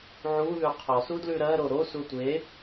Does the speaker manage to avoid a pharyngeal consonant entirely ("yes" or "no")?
no